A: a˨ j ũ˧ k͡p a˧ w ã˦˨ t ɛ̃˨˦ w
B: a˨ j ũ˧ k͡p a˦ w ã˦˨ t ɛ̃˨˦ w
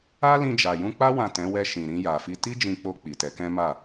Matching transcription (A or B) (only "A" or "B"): B